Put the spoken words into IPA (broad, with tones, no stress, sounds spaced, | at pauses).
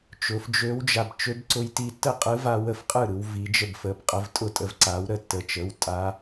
t͡ʃ ʊ˩˧ f d͡ʒ ø˧˥ w d͡ʒ a˧ b t͡ʃ ø˧˥ b ǀ ʊ˧ j t i˧ tː ə˥˩ qʼ ɯ˧˥ v a˧ w ə˥˩ f qʼ ɯ˥˩ ɾ ɯ˩˧ w v i˩˧ d͡ʒ ə˥˩ b f ə˩˧˩ b qʼ ə˧ v tʼ ʊ˥˩ tʼ ə˧ v ǀ a˩˥ w ɾ ə˥˩ tː ə˩˧˩ t͡ʃ ə˩˧˩ w tʼ a˧˥